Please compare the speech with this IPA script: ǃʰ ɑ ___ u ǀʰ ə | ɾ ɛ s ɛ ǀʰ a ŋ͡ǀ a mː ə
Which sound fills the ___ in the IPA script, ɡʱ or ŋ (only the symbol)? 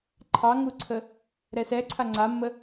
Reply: ŋ